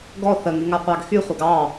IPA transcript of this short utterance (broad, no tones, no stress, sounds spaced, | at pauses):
ɡ ɔ θ ə ŋ y ŋ a qʷ ɑ ɡ x y χʷ ə ɡ ɑ